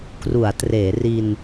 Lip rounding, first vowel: rounded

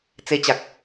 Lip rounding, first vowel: unrounded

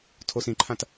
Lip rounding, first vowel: rounded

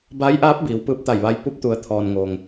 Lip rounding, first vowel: unrounded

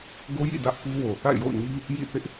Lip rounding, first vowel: rounded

